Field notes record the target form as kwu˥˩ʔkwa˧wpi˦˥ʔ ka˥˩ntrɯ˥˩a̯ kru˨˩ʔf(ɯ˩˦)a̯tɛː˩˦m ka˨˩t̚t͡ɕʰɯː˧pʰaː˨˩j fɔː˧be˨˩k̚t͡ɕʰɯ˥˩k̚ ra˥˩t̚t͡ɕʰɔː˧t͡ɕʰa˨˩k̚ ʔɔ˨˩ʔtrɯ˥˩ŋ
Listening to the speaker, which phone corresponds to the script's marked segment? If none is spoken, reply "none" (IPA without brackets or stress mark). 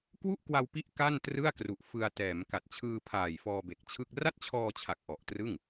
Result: ɯ˧